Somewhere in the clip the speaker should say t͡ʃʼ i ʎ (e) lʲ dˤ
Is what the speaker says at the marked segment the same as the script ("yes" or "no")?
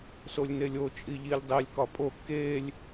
no